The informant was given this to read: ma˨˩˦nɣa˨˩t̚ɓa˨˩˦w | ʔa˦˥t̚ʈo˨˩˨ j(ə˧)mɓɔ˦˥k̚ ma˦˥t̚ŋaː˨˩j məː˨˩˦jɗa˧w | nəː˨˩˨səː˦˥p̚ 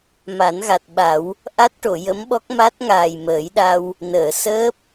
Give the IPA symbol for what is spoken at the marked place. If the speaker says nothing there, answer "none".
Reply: ə˧˥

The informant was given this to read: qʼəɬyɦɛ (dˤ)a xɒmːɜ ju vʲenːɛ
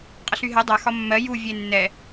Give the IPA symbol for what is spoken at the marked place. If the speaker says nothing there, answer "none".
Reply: dˤ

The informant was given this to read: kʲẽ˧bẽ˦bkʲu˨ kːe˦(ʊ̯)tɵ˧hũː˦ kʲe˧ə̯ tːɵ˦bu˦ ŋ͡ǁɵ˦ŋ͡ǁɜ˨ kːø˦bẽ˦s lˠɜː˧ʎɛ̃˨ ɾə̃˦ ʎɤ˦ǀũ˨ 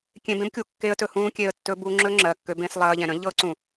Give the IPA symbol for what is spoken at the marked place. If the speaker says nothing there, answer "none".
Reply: ə̯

